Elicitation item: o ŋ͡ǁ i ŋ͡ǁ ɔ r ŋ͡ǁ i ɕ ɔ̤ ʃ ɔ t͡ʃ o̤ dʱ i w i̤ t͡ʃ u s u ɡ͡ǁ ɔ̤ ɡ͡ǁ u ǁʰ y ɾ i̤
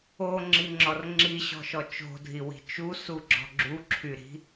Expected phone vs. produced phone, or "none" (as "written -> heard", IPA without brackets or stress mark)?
none